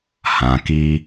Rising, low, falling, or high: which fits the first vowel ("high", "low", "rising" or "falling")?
low